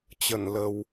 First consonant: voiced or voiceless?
voiceless